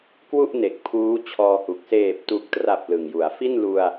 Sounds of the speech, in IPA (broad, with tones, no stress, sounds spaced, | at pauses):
k w u˥˩ ʔ n e˨˩ k̚ pʰ uː˦˥ t͡ɕʰ ɔː˧ h u˨˩ k̚ s eː˨˩ p̚ t u˨˩ k̚ t r a˨˩ p̚ l ɯ˨˩ ŋ j u˩˦ a̯ f i˥˩ n l u˧ a̯